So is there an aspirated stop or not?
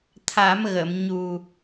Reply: yes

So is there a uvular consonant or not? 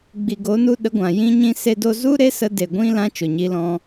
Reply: no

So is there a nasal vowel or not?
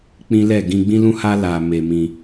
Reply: yes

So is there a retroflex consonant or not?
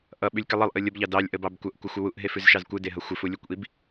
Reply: no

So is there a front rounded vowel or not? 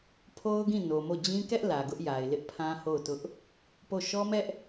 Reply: no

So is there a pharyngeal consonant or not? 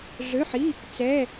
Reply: yes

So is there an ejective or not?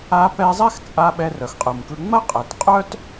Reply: yes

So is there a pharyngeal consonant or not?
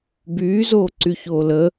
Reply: no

